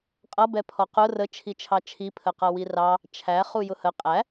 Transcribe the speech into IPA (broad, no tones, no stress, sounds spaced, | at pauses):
qʼ ʌ b ɛ pʰ ɔ q ʊ r ə t͡ʃʰ i t͡ʃʰ ɑ t͡ʃʰ i pʰ ə q ʌ w i r ɑ | t͡ʃʰ æ χ u j ʊ h ə qʼ æ